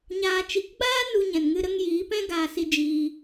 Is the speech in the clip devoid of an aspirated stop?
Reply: yes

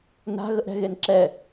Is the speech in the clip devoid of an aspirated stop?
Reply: yes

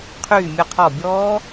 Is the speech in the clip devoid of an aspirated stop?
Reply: no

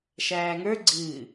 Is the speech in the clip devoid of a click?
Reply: no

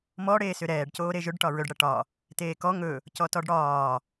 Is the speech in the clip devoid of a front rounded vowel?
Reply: no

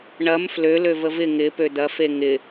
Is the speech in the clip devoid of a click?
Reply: yes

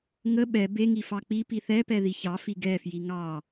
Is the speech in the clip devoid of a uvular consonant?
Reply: yes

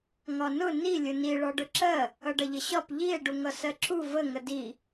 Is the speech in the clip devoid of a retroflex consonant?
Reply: no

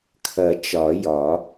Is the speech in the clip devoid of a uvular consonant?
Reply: yes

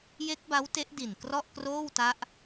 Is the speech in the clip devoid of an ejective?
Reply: yes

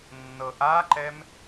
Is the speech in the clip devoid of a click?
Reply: no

